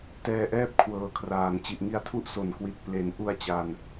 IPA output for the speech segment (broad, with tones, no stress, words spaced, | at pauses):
tɛː˧ʔɛː˥˩p̚kʰwɤː˨˩kʰraː˨˩n t͡ɕi˨˩ʔŋi˧a̯tʰu˦˥ʔ so˨˩nkwi˨˩t̚ ple˩˦nʔu˧a̯ t͡ɕa˧n